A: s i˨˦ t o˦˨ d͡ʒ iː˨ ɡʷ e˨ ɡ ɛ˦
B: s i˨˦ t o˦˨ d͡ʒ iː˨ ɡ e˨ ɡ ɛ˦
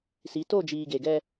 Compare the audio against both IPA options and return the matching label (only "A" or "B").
B